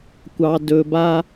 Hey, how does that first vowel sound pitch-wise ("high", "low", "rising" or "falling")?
low